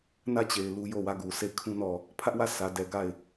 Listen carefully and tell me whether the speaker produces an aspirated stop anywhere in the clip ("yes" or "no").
yes